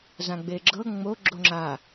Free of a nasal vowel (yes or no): no